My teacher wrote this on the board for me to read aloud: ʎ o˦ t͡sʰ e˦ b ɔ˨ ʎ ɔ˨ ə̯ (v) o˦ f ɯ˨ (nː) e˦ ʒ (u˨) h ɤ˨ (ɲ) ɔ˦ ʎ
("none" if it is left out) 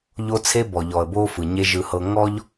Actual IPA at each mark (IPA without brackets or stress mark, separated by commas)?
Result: b, ɲ, ɯ˨, ŋ